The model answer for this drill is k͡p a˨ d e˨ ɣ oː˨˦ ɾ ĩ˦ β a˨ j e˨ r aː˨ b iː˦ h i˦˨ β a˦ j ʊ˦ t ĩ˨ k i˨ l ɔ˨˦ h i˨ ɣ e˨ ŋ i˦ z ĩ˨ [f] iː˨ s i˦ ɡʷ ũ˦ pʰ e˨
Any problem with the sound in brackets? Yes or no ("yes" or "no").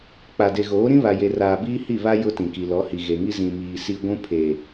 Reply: yes